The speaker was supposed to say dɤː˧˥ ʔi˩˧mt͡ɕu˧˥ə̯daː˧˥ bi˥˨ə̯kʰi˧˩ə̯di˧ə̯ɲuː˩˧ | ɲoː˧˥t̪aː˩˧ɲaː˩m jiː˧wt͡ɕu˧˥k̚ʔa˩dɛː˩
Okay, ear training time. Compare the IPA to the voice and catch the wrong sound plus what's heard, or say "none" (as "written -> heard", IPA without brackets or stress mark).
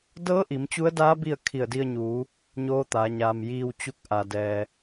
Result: none